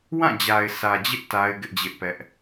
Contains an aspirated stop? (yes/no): no